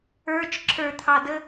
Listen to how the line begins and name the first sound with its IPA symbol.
ə˞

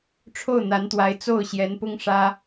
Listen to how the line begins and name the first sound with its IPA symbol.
ʈ͡ʂʰ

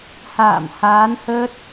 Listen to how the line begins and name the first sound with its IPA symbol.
h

